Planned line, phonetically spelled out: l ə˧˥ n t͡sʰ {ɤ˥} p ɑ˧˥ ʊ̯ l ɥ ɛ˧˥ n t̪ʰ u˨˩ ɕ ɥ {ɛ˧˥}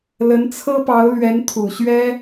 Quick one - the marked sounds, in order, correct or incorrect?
correct, incorrect: ɛ˥

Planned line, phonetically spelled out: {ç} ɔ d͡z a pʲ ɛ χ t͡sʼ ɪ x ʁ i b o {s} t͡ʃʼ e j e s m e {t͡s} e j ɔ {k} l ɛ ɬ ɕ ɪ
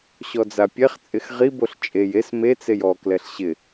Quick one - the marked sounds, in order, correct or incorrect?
incorrect: ɕ, incorrect: ɬ, correct, correct

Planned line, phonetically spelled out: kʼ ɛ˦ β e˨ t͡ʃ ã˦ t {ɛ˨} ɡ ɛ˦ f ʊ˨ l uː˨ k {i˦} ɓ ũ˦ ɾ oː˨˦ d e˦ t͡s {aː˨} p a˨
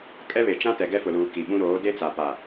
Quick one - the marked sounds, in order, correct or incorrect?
correct, incorrect: i˨, incorrect: a˨

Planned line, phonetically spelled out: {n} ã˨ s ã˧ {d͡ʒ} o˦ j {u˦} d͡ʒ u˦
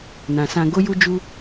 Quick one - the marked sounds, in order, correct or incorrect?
correct, incorrect: ɡ, correct

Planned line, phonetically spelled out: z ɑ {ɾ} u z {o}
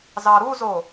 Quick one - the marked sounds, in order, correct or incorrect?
correct, correct

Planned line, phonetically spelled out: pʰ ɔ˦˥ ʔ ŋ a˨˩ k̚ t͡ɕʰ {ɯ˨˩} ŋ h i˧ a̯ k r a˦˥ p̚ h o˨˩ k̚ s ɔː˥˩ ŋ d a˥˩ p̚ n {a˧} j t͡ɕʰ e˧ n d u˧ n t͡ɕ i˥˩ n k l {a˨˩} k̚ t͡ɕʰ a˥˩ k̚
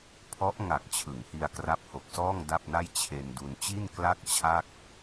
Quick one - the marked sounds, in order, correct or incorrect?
incorrect: ɯ˩˦, incorrect: a˥˩, incorrect: a˥˩

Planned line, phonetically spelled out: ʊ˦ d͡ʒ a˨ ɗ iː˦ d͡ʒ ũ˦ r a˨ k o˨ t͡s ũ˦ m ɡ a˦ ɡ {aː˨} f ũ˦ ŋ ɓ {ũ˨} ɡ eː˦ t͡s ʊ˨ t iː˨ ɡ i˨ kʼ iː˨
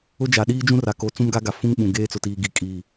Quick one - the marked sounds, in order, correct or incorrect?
incorrect: a˨, correct

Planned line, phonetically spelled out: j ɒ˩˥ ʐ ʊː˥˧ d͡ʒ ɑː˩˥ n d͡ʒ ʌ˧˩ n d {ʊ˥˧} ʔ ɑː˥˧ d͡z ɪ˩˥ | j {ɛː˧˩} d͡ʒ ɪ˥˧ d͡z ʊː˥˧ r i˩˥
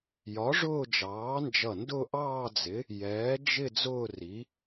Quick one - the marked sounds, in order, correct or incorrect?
correct, incorrect: ɛː˩˥

